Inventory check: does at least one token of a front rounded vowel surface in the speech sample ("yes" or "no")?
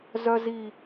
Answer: yes